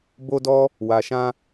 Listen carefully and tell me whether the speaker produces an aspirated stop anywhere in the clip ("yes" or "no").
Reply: no